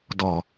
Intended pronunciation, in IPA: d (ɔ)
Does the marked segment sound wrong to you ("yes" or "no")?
no